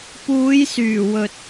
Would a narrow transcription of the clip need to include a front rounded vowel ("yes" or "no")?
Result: yes